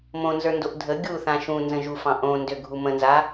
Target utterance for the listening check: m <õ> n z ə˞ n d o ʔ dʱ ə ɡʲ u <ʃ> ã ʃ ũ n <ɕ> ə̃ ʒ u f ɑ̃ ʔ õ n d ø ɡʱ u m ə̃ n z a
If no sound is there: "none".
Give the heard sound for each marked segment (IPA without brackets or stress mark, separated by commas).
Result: õ, θ, z